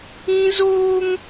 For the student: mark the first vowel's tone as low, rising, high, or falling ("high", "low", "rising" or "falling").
high